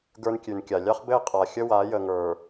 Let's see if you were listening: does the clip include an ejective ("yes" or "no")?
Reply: yes